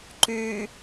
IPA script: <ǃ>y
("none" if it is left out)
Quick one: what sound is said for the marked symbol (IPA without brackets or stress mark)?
ǃ